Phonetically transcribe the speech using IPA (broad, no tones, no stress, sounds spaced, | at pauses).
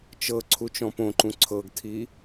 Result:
t͡ʃ ɤ ǀʰ u t͡ʃ ɔ̃ p õ ǃ ũ ǀʰ ɤ ɡ tʰ i